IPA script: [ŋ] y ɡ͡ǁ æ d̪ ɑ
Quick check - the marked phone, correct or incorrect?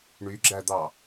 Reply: incorrect